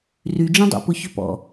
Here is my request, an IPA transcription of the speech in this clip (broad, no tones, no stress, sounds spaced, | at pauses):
r y d͡ʒ ĩ dˤ o̰ p ʊ ç ʏ p ɔ̰